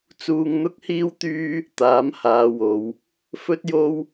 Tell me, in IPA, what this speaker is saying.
t͡s uː˧ ŋ n̪ ʊ˥ k̚ h iː˥ w t̪ yː˥ | t̪ aː˨˥ m h aː˨˧ w o˨˧ w | f ɵ˥ t̚ j o˥ w

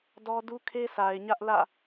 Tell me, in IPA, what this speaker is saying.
d ɔ˦ d u˦ kʰ e˦ s a˨ ɪ̯ ɲ ä˦ ʔ l ä̰˦˨

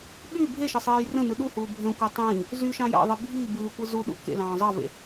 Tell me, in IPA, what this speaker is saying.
ɠ y bʱ e ʃ e sˤ eː j r ə̃ n ɯ ɗ u h uː bʱ ə̃ kʷ æ tˤ ĩː | z y ʃ ɑ̃ j ɑ̰ ðˤ i bʱ i b ɯː kʷ ɯ z u ɗ ṵ k ḛ l ɑ̃ː zˤ ɑ v ḛ

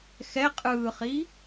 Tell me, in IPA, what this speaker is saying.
x ɛ qʼ ɯː χ i

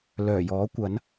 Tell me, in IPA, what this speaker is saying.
l œː˨˩ j ɔː˨˥ kʷ ɐ˨˥ n

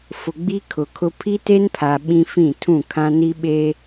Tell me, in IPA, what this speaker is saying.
f ʊ˨ ɡ͡b i˦ kʰ ʊ˨ kʰ ʊ˦ pʰ i˦ t e˦ n pʰ a˨ ɓ ĩ˦ f ĩ˦˨ tʰ ũ˦˨ kʰ ã˦ n i˦ ɓ e˦

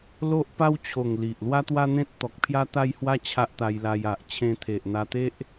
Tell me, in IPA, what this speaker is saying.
l o˦ ʔ p a˦ w t͡ɕʰ o˨˩ ŋ l i˨ ʔ l w a˦ t̪ w a˦ n̪ ẽ˦ t̚ t̪ ɔ˨ k̚ pʰ j a˦ t̪ a˦ j h w a˦ t͡ɕʰ a˦ ʔ t̪ a˧ j l a˧ j a˨ ʔ t͡ɕʰ ẽ˧ t̪ʰ e˨ ʔ n̪ a˧ t̪ e˦ ʔ

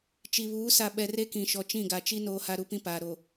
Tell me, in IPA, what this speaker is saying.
t͡ʃ i˨ β uː˨˦ s a˨ ɓ ɛ˨ r e˦ k ĩ˨ ʃ ɔ˨ t͡ʃ ĩ˦˨ ɡ a˨ t͡ʃ i˦ n oː˨ h a˨ ɾ u˦ p ĩ˦ p aː˨ ɾ o˨

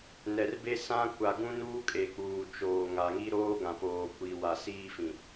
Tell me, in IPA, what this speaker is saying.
n ɛ˨ r b e˦ s ã˦ kʷ a˨ ɡ ũ˦ n uː˦ kʼ e˨ k͡p uː˨ t͡ʃ oː˨ ŋ a˨ ŋ i˦ ɾ oː˦ ɡ ã˨ p oː˨ kʷ iː˨ w a˨ s iː˦ f ĩ˨

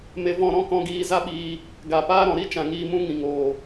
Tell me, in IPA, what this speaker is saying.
m e˧ v ɔ̃˦˨ ɾ ɔ̃˦ k ɔ̃˧ ɡ iː˧ z a˦ ɓ iː˧ | ɡ a˨ p aː˦ ɾ ɔ̃˨ ɾ i˦ t͡ʃ ã˨ ŋ iː˧ m ũ˦ ŋ ĩ˨ ŋ oː˨

